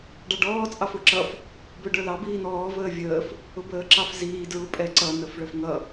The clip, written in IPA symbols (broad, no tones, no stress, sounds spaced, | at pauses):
ɖ ɑ ɖ ɔː t͡sʼ ɑ f ʊː ǁ ʌ f | b ʊː ɖ ə˞ l ɑ b iː n ɔː v əː vʲ əː f | ʊ b əː ǁ ɑ f z iː d ɹ u pʼ ɛ ǀ ʌ n ə f ɭ ə f ŋ ʌ